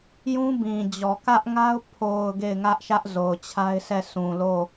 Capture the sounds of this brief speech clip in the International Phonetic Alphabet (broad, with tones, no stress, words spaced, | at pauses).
jũ˦bĩ˨d͡ʑɔ˨ kä˦ʔŋa˦ʊ̯ pʰo˨ʊ̯ ɡe˦˨ɪ̯ŋä˦ʔʃä˦ʔ zo˨ʊ̯t͡ɕʰa˦ɪ̯sɛ˦˨ sũ˨lo˦˨